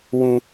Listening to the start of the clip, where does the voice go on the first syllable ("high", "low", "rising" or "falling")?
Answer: low